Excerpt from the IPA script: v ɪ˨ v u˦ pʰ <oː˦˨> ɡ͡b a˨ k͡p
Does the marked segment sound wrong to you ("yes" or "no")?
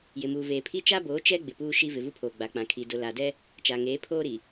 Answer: yes